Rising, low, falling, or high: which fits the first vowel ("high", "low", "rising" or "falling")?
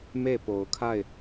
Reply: falling